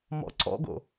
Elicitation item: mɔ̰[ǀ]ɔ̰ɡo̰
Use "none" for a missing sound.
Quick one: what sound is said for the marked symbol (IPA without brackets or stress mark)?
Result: ǀ